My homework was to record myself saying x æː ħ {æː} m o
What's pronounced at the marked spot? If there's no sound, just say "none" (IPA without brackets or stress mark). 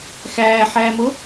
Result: æː